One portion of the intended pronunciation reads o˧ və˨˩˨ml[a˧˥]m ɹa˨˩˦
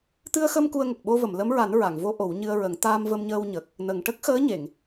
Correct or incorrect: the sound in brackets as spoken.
incorrect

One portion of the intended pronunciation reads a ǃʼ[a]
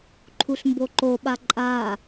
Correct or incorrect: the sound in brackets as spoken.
correct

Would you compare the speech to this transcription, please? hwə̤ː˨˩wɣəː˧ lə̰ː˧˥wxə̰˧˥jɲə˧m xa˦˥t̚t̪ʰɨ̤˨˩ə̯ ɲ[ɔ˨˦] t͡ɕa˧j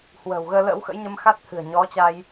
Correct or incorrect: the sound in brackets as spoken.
correct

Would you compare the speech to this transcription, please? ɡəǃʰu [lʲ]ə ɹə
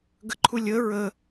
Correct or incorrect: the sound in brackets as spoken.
correct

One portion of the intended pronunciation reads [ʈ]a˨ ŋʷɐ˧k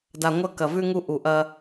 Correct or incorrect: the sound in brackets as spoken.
incorrect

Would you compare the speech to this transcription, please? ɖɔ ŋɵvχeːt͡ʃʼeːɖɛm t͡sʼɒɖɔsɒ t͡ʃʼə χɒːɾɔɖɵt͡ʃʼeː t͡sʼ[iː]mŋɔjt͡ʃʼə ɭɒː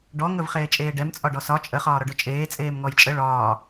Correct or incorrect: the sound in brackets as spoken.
incorrect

